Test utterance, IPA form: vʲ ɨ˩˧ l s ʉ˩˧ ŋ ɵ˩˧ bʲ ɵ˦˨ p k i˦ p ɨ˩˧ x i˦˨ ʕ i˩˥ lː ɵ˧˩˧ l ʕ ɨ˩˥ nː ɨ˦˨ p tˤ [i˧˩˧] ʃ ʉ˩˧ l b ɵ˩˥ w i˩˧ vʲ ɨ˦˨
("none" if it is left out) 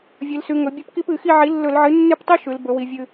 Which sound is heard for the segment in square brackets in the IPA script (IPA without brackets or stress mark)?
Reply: i˦